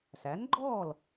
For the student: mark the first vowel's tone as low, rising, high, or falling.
rising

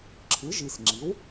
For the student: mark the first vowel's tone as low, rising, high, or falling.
rising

